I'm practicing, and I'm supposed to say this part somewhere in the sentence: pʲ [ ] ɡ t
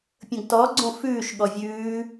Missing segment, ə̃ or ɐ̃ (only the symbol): ə̃